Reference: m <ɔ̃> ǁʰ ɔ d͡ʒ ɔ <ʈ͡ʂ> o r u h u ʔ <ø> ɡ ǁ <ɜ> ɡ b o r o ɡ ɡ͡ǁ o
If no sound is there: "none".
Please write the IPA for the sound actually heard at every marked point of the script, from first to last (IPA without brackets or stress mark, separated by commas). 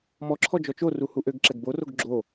ɔ, t͡ʃ, ø, ɛ